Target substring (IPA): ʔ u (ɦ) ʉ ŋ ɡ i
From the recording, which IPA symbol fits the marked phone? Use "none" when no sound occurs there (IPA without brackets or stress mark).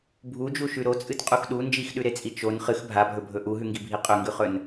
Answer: ɦ